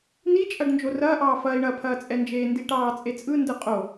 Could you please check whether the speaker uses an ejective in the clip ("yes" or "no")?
yes